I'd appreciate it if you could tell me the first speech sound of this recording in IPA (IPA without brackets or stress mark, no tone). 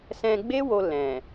s